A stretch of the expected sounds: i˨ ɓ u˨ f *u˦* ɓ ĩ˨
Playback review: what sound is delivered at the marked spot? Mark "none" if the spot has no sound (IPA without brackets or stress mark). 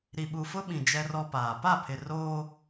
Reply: ʊ˦